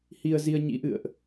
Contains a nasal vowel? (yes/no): no